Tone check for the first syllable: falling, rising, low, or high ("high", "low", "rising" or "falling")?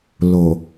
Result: low